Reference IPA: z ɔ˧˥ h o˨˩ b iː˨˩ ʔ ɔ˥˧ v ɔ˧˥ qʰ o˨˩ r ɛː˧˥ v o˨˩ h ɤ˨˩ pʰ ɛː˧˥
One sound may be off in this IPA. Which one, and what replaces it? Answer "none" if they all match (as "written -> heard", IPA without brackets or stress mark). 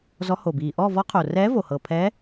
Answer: none